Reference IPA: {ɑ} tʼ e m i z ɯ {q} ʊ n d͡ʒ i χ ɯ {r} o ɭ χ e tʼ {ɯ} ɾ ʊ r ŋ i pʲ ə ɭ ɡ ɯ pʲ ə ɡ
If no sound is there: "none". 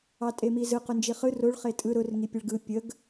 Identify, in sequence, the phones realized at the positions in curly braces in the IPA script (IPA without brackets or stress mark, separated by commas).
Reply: ɑ, q, r, ɯ